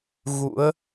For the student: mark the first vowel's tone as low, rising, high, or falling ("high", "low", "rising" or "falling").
rising